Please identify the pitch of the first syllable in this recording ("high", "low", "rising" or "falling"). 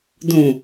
low